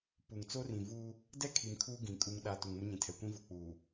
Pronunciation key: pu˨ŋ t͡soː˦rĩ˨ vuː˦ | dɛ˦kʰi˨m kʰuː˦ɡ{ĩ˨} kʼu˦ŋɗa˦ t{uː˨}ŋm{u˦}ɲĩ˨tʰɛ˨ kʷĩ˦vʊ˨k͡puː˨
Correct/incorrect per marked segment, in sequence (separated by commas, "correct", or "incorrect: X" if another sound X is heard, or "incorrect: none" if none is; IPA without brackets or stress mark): correct, incorrect: u˨, incorrect: ʊ˦